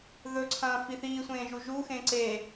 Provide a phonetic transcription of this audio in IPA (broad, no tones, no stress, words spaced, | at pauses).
ðɵǀʰɐ̃ːfi θiːsʷẽːʒu ʒuxẽ ǀe